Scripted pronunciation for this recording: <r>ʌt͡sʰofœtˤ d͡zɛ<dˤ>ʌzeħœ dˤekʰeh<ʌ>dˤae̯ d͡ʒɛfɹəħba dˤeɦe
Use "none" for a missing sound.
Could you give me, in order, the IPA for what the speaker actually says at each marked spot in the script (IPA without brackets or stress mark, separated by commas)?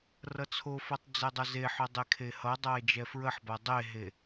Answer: r, dˤ, ʌ